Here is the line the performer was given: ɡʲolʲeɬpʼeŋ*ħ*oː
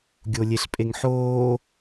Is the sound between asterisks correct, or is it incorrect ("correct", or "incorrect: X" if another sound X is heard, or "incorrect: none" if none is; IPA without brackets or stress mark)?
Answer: correct